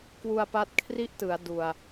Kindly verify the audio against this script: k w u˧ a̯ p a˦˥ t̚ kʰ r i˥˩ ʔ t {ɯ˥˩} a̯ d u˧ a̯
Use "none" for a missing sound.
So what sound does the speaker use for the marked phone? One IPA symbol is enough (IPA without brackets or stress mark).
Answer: ɯ˩˦